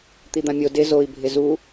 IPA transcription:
t̪id̪ãmʲo dɪ zoi̯ bʱɪzu

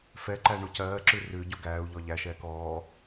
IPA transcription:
fɛǃæ ɳucɜːǁʉ rʉ ɟuɡæːu̯ʎɔ ʎæʃɛːk ɔː

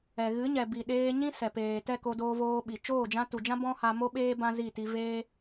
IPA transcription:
ɛ˨ ɣɨ˨˦ɲɛ˨ bi˨ ɗeː˧ɲĩ˦sɛ˨peː˨ tɛ˦˨ko˧ doː˧voː˧ɓi˨ t͡ʃoː˦˨d͡ʒã˧tu˨d͡ʒã˦ bɔ̃˦ha˧ mo˦ɓeː˦ bã˦zi˦˨ti˧ veː˦

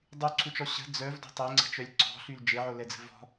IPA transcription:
dˤyǀʰut͡ʃɔ ɕə̤ d͡zœvdɔ̤ tˤeŋ͡ǀə̤t͡ʃœlʲ ǀɔ̤ɬyl d͡ʒeʕolɛd͡zə̤ vɔ̤

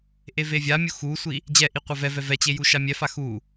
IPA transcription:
ʔevevʲamʲu xusʷi | d͡ʑɛʔi qʷavɛvɛ vɛt͡ɕe juʃamʲɛfa xu

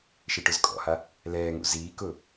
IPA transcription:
ʃeʈʊzkʼɔ̰ha | lɛːŋṵ ziːkʊː

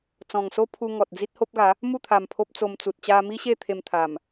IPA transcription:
t͡sɔ̃˨˩ŋso˦pʰu˧ ŋɔ˨t̚d͡zi˦t̚ ho˦p̚ɡa˨˦ | mu˥˧t̪ʰa˨˩m pʰo˦p̚t͡so˧mt͡su˨t̚ t͡ɕa˧mi˦ɕe˥˧ t̪ʰe˧mt̪ʰa˨˩m

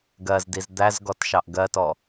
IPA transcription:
ɡɜzdiz d̪æzɡɔt ʃɑʔɡɜtɔ

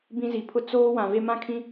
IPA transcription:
bĩ˦zi˨pʰʊ˦ t͡soː˦ wã˨ve˦ mã˦kʰĩ˦

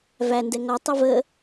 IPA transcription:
vændɛ ŋɔtˤiv ə

